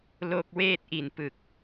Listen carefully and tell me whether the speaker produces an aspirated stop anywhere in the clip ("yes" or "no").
no